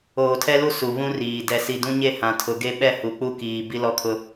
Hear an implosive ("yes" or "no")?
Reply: yes